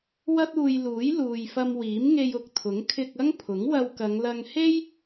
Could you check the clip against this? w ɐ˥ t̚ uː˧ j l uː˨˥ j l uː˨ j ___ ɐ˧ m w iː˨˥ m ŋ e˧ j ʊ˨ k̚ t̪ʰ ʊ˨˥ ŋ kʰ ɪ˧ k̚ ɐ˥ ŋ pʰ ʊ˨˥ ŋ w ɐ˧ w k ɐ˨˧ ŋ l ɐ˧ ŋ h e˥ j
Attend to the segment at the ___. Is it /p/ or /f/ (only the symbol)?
f